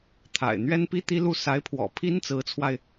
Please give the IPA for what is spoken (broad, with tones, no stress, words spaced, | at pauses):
t̪ʰa̰˨˩ɪ̯n̪ɥɛ˥npi˥ t̪i˥lu˥˩ sa˧˥ɪ̯pʰwɔ̰˨˩ pʰi˥nt͡sɹ̩˧˥t͡sʰwa˧ɪ̯